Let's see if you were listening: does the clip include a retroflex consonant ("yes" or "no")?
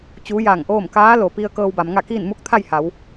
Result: no